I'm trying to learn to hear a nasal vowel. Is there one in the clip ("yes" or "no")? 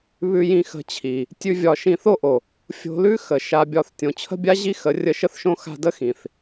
yes